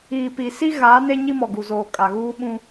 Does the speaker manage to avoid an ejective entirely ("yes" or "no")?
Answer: no